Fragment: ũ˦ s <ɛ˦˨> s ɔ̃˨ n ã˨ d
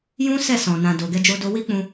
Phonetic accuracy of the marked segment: correct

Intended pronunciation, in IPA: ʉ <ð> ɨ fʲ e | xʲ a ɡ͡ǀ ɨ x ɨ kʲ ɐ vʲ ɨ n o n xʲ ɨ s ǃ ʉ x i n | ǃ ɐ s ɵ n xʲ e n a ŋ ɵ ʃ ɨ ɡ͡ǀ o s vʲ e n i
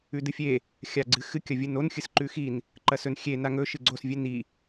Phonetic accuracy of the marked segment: incorrect: d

